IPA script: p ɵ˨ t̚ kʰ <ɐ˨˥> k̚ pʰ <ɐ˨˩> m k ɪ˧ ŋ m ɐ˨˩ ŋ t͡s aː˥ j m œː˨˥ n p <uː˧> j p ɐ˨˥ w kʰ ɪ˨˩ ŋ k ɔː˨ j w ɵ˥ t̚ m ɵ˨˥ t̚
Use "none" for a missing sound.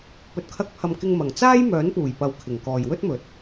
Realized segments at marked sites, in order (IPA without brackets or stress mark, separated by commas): ɐ˧, ɐ˨, uː˨˩